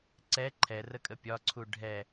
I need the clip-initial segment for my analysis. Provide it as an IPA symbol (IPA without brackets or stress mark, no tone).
ǀ